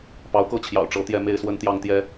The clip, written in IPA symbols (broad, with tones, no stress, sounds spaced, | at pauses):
p ɑ˨˦ ʊ̯ k ɤ˥˨ t͡ɕʰ j ɑ̰˨˩ ʊ̯ ʈ͡ʂ ɤ˨˦ t̪ j ɛ˥˨ m e˥˨ ɪ̯ s w ə˦ n t̪ j ɑ˥˨ ŋ t̪ j ɛ˦